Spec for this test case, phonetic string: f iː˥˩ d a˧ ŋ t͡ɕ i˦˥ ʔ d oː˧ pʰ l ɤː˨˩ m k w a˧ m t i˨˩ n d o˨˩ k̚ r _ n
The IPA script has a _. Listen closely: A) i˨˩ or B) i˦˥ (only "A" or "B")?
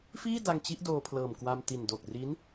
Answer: B